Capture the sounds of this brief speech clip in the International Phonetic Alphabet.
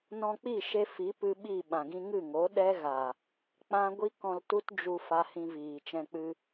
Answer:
nɔ̃˧k͡pi˦˨ʃe˧ fi˨˦pɨ˧ ɓi˦˨ ɓã˨ɡĩ˧ŋɨ˦˨ŋo˨˦ ɗɛ˦ɣa˨ | k͡pã˦ ɡʷi˦kɔ̃˧ltu˦t d͡ʒu˧ fa˧hĩ˧viː˨t͡ʃɛ̃˧ k͡pɨ˧

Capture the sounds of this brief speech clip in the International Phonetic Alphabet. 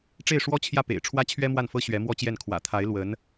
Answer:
ʈ͡ʂe˥˩ɪ̯ʂwɔ˥t͡ɕʰjä˥˩ pḛ˨˩ɪ̯ ʈ͡ʂʰwä˥t͡ɕʰɥɛ˥mwa˥˩nfɤ˥ ɕɥɛ˧˥mwɔ˥t͡ɕjɛ˥˩n kʰwä̰˨˩t̪ʰa˧˥ɪ̯ lwə˧˥n

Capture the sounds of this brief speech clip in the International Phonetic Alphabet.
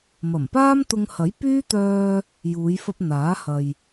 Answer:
mɐ˨˩mpaː˥mt̪ʊ˧ŋhɐ˨˥j pyː˥t̪œː˧ | juː˨˧jfɐ˧p̚ n̪aː˨˥hɐ˨j

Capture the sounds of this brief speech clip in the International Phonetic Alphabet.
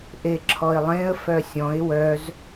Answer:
ʔeǁʰɔɪ̯lˠẽə̯ fœsʲɔ̃ɪ̯ wœz

